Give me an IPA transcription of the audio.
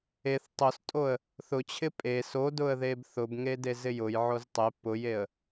e θ tˤ o s tʼ o ə̯ | θ ʊ t͡ɕʰ ɪ pʼ e s o d ʊ ə̯ ð e b θ ʊ b ŋ e d e z ɪ j ʊ j ʕ o z tˤ e p ʊ j e ə̯

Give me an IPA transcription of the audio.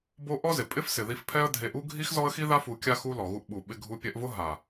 b o˦ ʔ ɔ˦ z ɪ˨ pʼ ɪ˦ f s ɪ˨ ð i˧ f pʰ ɛ˦ ə̯ dʱ e˧ ʔ u˦ ɡʱ i˦ x z ɔ˦ ə̯ x i˦ ð a˦ f u˧ kʲ a˦ x u˧ l ɔ˨ ɣ u˧ ʔ ɓ u˨ ɓ ɪ˧ ɡʱ u˧ pʲ ɛ˧ ʔ v ʊ˦ ɦ a˨

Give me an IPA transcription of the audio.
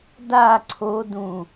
d a ǀʰ o d ũ

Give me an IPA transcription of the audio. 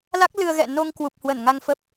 l a˦˥ k̚ l ɨ˧ ə̯ ɣ ɛ̰˧˨ n o˧ ŋ k w u˨˩ p̚ h w ə˧˩ n ŋ a˧ ŋ f ə˦˥ p̚

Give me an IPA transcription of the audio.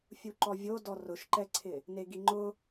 fʲ u ǃ ɔ vʲ o d ɔ r ʊ ʃ ǃ ɛ ǀʰ ɪ | n e ɡ i ŋ͡ǃ ʊ

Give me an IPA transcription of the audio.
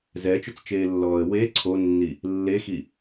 z ɛ t͡ʃ ɵ t͡s t͡ʃ eː lː ɔː ə̯ w e ǀʰ o nː i | lː e x i

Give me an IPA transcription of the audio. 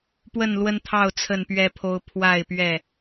p w ə˥˨ n l w ə˦ n t̪ʰ ɑ˥˨ ʊ̯ t͡sʰ ə˥˨ n p ɥ ɛ˦ pʰ o˦ ʊ̯ pʰ w a˥˨ ɪ̯ p ɥ ɛ˥˨

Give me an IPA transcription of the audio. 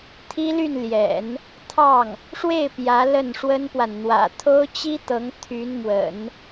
t̪ʰ i˥ l y˥˩ n l j ɛ̰˨˩˦ n | t̪ʰ ɑ˥˩ ŋ | ʂ w e˥˩ ɪ̯ p j ä˧˥ l ə˥˩ n ʂ w ə˥ n p w a˨ n n̪ w ä̰˨˩ t̪ʰ o˥ ʊ̯ t͡ɕ i˥ t̪ ɤ˧˥ ŋ t̪ʰ y˧˥ n m w ə̰˨˩˦ n

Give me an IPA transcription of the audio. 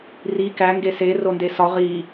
r i k æ ŋ ɡ e s e r o n d e s ɒ ʁ i

